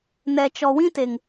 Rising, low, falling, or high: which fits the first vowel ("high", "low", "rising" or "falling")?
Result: low